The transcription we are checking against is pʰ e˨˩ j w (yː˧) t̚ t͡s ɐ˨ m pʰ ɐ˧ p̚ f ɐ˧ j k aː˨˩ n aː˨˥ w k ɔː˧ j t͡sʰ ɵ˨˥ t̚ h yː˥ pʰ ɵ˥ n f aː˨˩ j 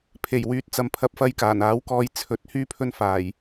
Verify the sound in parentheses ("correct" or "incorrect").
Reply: incorrect